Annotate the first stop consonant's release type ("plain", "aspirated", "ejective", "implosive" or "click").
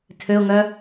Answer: aspirated